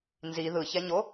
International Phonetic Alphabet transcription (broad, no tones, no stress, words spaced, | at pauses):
nzi ðɯçɛɲo